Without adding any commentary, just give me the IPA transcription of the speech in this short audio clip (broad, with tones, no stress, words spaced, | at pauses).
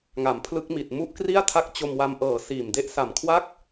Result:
ŋa˩˦mpʰlɯ˦˥k̚mi˨˩t̚ mu˦˥ʔkri˥˩a̯tʰa˦˥k̚ t͡ɕo˧mwa˧mʔɤː˨˩ siː˨˩mde˥˩ʔ sa˨˩mkʰwa˥˩k̚